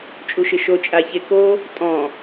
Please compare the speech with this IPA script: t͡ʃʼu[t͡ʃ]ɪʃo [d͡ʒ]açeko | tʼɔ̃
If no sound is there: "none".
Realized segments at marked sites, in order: ʃ, t͡ʃʼ

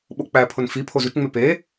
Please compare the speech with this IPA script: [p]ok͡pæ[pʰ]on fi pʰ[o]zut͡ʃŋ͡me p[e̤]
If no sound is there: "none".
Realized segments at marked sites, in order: ɓ, pʰ, o, e

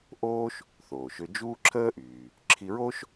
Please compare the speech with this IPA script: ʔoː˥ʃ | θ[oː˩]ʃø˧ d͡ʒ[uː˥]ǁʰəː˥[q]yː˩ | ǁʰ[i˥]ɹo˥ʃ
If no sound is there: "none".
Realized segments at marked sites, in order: oː˩, uː˥, ʔ, i˧

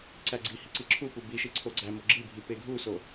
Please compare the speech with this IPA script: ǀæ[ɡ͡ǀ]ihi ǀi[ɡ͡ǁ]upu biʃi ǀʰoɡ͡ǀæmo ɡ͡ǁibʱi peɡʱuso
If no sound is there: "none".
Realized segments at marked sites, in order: ɡ͡ǀ, ǁʰ

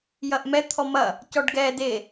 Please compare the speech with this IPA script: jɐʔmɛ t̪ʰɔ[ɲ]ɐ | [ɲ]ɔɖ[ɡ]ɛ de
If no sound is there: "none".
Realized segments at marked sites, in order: m, c, ɡ

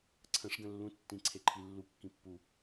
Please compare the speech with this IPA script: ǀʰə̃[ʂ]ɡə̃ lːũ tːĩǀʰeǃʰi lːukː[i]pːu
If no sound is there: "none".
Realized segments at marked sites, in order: ʂ, ĩ

